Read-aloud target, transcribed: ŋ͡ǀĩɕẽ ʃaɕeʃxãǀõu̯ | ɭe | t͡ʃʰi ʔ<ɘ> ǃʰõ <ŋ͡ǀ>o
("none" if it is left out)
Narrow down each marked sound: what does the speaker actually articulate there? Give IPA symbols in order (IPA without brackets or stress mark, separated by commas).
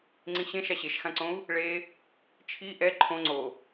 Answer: ɛ, ŋ͡ǀ